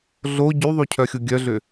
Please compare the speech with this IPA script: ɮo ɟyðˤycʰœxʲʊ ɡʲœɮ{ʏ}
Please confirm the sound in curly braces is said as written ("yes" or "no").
yes